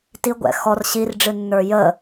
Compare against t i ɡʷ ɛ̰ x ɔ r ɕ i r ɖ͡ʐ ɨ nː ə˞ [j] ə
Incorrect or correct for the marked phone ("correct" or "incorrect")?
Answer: correct